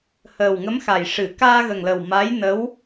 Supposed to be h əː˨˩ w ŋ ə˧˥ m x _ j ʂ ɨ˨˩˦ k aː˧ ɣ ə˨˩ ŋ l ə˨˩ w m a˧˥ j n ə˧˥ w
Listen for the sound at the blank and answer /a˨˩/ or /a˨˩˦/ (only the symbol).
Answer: a˨˩